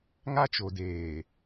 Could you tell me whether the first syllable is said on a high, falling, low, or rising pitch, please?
high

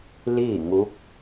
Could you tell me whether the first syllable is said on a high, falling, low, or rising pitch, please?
falling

